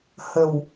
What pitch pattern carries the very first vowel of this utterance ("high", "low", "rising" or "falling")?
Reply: low